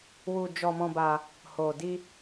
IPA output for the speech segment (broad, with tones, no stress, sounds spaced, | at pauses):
w u˧ d͡ʒ ɔ˧ m ɔ̃˧ b a˧ | h o˨ d i˧